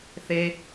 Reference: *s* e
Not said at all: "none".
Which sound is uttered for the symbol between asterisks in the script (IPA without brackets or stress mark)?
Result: θ